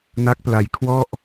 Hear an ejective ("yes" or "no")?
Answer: no